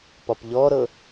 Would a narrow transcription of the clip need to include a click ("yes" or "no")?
no